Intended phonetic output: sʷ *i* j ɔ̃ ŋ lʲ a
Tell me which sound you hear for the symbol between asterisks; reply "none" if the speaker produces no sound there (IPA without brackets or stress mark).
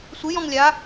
ɪ